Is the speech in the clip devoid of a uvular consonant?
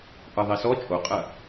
no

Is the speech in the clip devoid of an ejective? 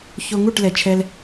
yes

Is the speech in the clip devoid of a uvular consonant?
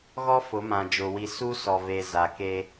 yes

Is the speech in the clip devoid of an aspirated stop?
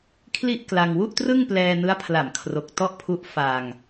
no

